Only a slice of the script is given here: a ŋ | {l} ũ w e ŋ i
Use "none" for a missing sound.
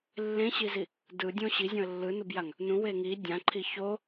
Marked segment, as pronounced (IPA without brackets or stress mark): n